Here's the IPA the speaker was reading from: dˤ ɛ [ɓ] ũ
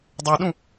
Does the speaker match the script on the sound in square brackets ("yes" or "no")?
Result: no